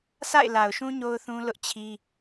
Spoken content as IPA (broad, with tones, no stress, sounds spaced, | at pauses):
s a̰˦˨ ɪ̯ l a˨ ʊ̯ ʃ ũ˦ ɲ o˦ ʊ̯ θ ũ˦ l ʊ˦ ʔ t͡ɕʰ i˦